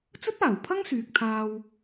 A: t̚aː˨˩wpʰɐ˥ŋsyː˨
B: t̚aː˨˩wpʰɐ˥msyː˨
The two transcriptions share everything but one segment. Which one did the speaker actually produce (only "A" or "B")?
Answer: A